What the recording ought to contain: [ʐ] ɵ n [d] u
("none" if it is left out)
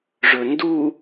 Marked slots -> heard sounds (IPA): ʐ, d

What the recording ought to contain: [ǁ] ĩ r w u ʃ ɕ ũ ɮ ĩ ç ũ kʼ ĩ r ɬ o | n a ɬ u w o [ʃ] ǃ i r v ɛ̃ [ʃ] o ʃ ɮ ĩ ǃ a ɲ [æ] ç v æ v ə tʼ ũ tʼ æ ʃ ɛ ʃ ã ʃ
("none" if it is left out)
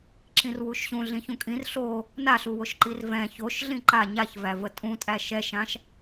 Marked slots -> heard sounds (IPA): ǁ, ʃ, ç, a

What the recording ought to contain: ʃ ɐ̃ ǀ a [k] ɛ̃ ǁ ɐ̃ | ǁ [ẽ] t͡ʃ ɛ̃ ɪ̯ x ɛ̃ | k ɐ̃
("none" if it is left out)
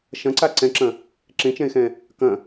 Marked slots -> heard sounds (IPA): ǀ, ẽ

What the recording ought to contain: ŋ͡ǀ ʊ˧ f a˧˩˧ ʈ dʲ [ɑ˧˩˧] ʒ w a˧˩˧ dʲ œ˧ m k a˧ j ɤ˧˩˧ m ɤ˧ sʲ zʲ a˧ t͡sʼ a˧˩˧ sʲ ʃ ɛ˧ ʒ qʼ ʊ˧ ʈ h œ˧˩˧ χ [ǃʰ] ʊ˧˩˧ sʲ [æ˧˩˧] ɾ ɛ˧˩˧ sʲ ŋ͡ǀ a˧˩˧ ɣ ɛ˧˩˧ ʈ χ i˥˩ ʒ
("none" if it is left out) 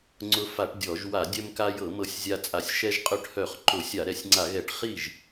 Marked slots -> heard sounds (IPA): ɔ˧˩˧, ǃ, a˧˩˧

